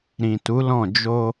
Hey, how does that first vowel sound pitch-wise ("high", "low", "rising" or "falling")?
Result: low